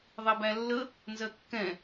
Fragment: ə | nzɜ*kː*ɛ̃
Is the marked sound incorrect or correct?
correct